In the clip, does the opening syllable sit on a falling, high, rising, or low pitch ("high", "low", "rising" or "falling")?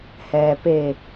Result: low